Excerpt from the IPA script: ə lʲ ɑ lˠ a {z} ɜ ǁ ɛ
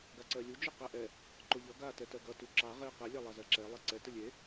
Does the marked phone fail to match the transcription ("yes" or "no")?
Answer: no